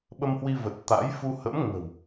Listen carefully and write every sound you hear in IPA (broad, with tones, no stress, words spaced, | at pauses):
ɓə˧mhwi˧və˨˩t̚ t̪a̰˧˥j fu˧hə̰˧˥m ŋə̤˨˩w